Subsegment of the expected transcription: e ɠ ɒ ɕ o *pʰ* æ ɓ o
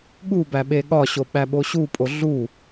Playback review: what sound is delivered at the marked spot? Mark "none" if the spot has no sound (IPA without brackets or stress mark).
ɓ